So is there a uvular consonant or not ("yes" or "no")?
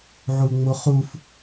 yes